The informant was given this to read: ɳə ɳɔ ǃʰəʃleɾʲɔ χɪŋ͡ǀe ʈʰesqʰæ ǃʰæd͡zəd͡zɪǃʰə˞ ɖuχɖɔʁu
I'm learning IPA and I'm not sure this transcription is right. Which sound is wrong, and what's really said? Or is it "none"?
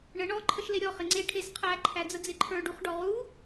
none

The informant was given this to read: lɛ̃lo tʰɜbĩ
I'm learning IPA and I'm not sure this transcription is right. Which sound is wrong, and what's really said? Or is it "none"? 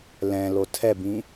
ɜ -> ɛ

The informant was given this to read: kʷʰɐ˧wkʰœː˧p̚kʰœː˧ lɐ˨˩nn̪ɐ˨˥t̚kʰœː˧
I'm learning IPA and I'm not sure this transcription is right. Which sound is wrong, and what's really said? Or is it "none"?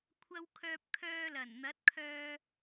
none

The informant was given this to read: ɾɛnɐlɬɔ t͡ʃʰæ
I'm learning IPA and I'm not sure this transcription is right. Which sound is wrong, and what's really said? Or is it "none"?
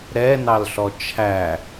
ɐ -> ɑ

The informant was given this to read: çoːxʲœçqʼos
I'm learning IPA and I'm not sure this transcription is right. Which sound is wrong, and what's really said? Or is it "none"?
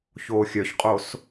none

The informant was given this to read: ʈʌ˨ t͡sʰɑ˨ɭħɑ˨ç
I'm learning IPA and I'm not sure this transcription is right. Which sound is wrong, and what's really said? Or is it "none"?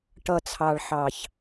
none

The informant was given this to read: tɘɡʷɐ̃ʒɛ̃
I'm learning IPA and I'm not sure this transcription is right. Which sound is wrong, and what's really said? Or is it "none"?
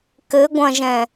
t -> k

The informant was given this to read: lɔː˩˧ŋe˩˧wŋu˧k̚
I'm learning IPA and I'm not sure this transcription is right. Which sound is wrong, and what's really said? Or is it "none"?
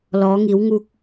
e˩˧ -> i˩˧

